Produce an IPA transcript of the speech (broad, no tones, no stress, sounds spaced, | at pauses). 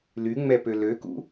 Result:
l y ŋ͡m ɛ p ø l ø k ṵ